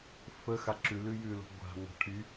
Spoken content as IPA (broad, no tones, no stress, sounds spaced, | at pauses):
f ə x a ǁ ʉ l ʉ j ʉ l o̤ ɡʷ a̤ ŋʷ a̤ ʈʰ y